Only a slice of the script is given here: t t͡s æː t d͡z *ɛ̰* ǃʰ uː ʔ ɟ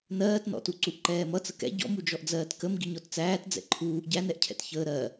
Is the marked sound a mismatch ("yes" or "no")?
no